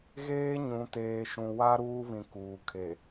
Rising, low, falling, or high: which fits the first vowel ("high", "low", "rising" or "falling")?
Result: high